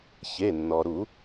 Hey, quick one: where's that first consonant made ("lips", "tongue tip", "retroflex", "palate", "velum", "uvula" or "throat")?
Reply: palate